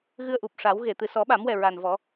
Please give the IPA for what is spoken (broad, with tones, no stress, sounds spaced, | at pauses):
ɣ ɨ˧ ə̯ ʔ u˨˩ p̚ ʂ a˨˩˦ w ɣ e˨˩˨ t̪ ɨ˨˩ s ɔ˨˩˦ ɓ a˨˩˦ m w ɛ˨˩ ɹ a˨˩ n v ɔ˨˩˦